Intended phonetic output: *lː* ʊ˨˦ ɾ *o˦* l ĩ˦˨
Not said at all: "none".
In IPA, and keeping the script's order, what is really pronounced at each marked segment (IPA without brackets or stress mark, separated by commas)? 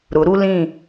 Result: ɾ, u˦